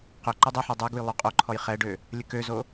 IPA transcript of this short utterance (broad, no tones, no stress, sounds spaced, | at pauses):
q ø ǃ ø dˤ ɛ ħ ɛ dˤ ɛ ɡ u j lˠ o qʼ o ǃʰ ɔ j χ ɛ ɖ ø | lʲ ə k ø z o